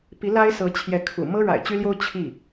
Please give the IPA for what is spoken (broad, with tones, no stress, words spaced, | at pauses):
pi˧˥la˥ɪ̯sɤ˧˥t͡ɕʰjɛ˧˥ kʰṵ˨˩ mɤ˥ɻa̰˨˩ɪ̯t͡ɕy˥ljo˥ʊ̯ t͡ɕʰi˥˩